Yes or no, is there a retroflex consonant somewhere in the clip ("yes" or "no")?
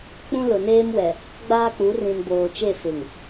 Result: no